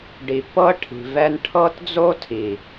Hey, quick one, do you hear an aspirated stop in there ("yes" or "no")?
yes